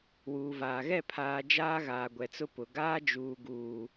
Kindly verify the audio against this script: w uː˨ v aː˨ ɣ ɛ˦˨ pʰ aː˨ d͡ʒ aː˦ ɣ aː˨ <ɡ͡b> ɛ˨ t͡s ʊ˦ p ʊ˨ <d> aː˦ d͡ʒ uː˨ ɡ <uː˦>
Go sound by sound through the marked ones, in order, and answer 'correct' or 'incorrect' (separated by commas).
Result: incorrect, incorrect, incorrect